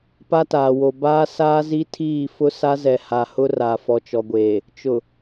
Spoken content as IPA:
p a˦ t aː˨ w o˨ b aː˦ s aː˦ z i˦ tʰ iː˦˨ f ʊ˦ s a˦ z ɛ˨ h a˨ h ʊ˦ r a˨ f ɔ˨ t͡ʃ ɔ˨ ɡʷ eː˨ | t͡ʃ ʊ˨

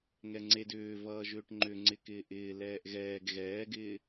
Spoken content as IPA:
ŋ ɛ ŋ͡ǀ e d ʏː v ʌː ʒ ʏː ʈ ŋ͡ǃ ʏ ŋ͡ǀ ɪ k ɪː ʔ ɪː l ɛː ʔ ɣ ɛː ɡ ɣ ɛː ɡ ɪː

